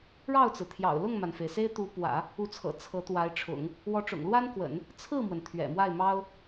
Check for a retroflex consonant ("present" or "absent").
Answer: present